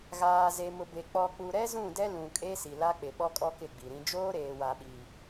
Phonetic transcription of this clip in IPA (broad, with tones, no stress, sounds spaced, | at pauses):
ɣ aː˨ z e˨ m ʊ˨ b e˨ k͡p ɔ˨ k͡p u˨ ɾ ɛ˦ z ũ˦˨ d ɛ˦ l ũ˨ kʼ e˦ s i˨ l a˦ k͡p ɪ˨ ɓ ɔ˦ kʼ ɔ˦ k ɪ˦˨ ɡ͡b i˨ ɾ ĩ˦ d͡ʒ oː˦ ɾ eː˨ w a˨ ɓ iː˨